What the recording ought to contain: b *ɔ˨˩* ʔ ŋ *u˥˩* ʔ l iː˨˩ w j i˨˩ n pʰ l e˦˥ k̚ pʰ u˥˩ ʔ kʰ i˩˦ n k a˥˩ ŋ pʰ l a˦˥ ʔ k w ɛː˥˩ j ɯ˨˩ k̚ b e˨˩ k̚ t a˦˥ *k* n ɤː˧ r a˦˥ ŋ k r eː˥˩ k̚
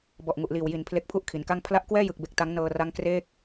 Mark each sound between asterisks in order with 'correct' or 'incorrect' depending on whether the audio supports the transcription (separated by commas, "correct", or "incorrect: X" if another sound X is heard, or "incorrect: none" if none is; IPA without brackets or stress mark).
correct, incorrect: u˨˩, incorrect: ŋ